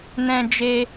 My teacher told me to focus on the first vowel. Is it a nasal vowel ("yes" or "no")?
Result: yes